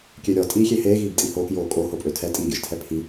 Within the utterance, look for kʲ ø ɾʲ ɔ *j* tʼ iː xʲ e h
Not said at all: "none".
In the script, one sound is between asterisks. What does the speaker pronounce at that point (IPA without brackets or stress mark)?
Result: none